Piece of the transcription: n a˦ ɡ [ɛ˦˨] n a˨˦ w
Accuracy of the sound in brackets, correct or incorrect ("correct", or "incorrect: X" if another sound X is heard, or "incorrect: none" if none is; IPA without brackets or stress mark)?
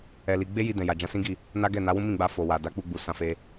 correct